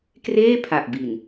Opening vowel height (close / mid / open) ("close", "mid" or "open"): mid